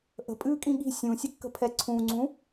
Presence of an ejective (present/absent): present